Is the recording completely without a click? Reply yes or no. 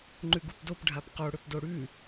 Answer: no